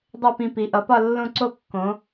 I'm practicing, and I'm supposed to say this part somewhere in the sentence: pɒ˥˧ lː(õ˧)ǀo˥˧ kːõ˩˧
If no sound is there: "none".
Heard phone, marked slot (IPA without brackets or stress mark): õ˥˧